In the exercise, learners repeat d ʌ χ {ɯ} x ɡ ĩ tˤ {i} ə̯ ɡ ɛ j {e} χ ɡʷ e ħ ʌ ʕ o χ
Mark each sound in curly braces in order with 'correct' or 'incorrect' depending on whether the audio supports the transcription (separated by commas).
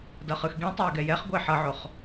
correct, correct, incorrect